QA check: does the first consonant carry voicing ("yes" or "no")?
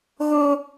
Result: yes